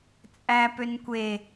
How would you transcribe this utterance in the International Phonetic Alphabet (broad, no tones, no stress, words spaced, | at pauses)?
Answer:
t͡sʼæ pønkʷe